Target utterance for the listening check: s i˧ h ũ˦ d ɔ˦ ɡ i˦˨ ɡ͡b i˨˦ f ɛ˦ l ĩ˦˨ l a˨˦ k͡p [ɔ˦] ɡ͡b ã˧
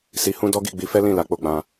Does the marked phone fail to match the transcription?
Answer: yes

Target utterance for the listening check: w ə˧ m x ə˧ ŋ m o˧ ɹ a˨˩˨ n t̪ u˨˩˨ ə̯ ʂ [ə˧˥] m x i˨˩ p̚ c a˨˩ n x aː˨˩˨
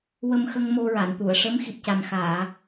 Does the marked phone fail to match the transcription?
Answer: no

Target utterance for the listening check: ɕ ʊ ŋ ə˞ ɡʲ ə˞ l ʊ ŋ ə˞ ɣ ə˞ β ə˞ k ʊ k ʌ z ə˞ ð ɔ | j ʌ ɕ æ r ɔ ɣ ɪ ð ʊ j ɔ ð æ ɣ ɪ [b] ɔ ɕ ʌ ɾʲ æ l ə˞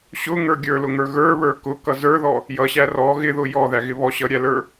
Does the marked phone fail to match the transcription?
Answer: yes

